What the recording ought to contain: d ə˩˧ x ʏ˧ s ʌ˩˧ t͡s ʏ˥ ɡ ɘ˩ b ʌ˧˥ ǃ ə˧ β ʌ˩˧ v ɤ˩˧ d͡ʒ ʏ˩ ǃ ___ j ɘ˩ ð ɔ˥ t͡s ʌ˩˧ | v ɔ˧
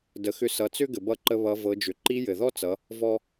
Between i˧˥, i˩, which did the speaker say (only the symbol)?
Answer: i˧˥